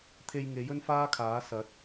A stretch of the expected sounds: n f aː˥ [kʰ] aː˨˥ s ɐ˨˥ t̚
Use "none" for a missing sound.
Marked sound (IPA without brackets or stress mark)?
kʰ